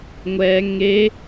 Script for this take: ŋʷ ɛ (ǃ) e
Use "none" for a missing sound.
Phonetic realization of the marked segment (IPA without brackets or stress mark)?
ŋ